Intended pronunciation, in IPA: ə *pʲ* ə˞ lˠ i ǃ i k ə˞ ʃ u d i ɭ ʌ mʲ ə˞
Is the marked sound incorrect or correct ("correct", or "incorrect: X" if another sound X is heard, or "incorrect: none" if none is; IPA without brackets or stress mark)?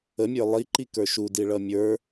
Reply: incorrect: mʲ